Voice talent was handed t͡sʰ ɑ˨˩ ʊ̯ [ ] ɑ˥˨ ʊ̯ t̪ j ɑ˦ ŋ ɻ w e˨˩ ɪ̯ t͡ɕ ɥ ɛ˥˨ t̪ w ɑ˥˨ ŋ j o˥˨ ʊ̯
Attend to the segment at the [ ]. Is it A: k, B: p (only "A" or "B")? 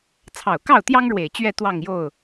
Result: A